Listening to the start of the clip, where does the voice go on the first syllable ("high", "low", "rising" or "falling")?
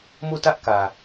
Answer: falling